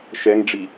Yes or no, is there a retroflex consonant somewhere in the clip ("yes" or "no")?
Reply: yes